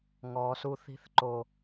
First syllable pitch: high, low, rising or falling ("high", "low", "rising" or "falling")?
low